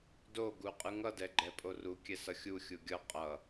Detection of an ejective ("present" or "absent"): present